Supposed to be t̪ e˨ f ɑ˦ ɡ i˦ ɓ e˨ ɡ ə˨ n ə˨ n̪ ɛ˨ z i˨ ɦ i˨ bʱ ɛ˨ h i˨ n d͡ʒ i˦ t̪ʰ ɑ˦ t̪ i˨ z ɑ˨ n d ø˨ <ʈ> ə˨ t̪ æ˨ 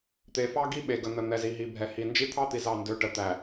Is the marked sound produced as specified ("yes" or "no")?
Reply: yes